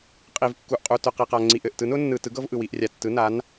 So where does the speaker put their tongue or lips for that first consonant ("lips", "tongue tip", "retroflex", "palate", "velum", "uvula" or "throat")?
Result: uvula